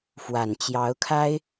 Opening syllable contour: low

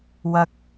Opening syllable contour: high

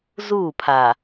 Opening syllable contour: falling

